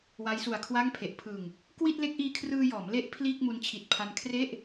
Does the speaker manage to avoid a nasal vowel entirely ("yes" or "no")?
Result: yes